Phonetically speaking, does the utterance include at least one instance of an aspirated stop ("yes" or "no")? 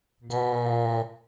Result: no